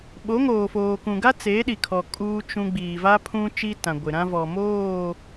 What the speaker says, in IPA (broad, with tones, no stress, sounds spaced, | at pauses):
ɓ o˨˦ ŋ oː˨ f oː˨ k ũ˨ ɡ a˦ t͡s e˨˦ ɗ i˨ kʰ ɔ˨ kʼ uː˦ t͡ʃ ũ˦ ɡ͡b iː˨ v a˦ pʰ ũ˦ t͡ʃ i˦ t ã˨ ɡʷ ɪ˨ ɾ ã˦ v ɔ˨ m oː˦˨